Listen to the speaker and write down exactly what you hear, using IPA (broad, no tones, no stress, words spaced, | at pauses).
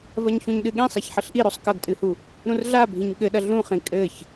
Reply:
vɐɲçũɲɗɨɠĩ sˤaçħɘɬʔiɾosˤ kɐɡtʼɨhu | ɾũrɮa bʱĩɲɠɘɗɐ ɮũχĩ kʼɘç